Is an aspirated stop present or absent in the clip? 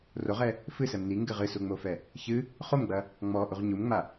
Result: absent